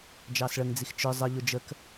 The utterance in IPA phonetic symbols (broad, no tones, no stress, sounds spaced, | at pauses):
d͡ʒ ɑ s ɭ ə ŋ d͡z i x t͡ʃ ə˞ zˤ ə ʎ ʊ d͡ʒ ə k